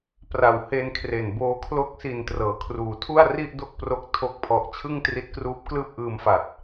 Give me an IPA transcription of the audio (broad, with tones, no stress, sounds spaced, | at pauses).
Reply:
p r a˨˩ w h e˧ n kʰ r e˨˩ n b oː˧ kʰ l o˦˥ k̚ s i˨˩ n t r ɤː˩˦ kʰ r uː˩˦ tʰ u˥˩ a̯ r i˥˩ ʔ d o˥˩ k̚ p r o˦˥ k̚ tʰ o˥˩ k̚ pʰ ɔ˦˥ ʔ t͡ɕʰ ɯ˥˩ ŋ t r i˦˥ t̚ k r uː˦˥ p̚ k l ɯː˥˩ p̚ ʔ ɯː˧ m f a˨˩ t̚